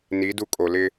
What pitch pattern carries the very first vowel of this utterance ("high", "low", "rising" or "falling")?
rising